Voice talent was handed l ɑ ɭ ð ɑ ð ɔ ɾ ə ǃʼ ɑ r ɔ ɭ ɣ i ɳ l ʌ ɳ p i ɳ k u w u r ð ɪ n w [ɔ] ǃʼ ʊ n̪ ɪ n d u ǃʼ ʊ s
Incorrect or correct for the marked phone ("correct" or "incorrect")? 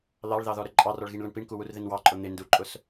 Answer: incorrect